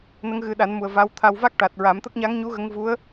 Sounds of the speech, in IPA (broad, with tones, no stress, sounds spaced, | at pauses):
n ə˧˥ ŋ ɣ ɨ˨˩˦ ɗ a˨˩˦ n m u˨˩ ə̯ v a˧˥ w t̪ʰ a˧ w v a˦˥ k̚ ʈ a˨˩ t̚ ɹ a˨˩˦ m t̪ ə˦˥ k̚ ɲ a˧˥ ŋ ɲ u˧˥ ɣ ə˧˥ ŋ v u˧˥ ə̯